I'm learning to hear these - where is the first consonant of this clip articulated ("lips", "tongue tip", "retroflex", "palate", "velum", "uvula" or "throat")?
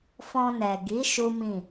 lips